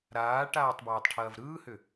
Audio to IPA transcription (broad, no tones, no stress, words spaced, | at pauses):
ɾaːʈaːtˤ bɜːtˤʈʰɐːvɾɯːhʏ